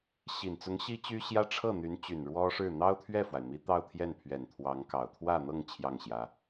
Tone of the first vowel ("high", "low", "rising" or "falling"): low